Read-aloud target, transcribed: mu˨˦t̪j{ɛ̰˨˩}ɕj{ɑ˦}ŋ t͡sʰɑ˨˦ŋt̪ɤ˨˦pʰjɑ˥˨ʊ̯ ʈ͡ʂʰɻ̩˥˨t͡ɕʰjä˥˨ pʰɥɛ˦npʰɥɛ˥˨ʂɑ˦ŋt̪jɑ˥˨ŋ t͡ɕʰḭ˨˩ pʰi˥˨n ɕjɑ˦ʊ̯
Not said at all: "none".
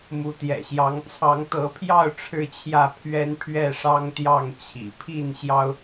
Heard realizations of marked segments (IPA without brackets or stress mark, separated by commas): ɛ̰˨˩, ɑ˨˦